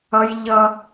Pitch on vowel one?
high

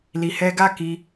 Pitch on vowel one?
low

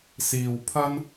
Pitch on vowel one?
low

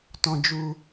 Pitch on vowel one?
high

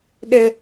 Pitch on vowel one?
high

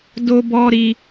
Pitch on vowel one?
high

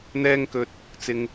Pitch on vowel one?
high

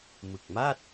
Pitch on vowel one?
low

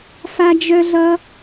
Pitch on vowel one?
high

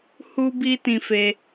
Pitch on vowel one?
high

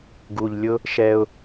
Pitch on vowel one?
low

